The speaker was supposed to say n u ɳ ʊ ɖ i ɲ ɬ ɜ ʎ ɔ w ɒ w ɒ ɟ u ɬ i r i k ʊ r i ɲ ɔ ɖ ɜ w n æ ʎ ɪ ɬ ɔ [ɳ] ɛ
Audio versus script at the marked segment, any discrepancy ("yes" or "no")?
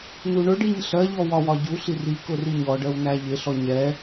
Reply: yes